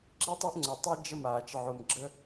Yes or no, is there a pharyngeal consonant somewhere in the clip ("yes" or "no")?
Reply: yes